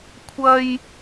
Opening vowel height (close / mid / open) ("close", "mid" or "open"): open